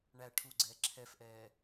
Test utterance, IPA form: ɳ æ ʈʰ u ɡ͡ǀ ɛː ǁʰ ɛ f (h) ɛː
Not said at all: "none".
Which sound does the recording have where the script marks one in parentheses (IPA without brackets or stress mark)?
ʔ